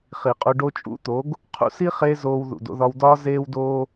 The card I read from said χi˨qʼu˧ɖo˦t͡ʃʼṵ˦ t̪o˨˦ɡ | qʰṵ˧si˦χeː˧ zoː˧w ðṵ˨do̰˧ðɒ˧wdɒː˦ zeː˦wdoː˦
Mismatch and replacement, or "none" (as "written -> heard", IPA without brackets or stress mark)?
none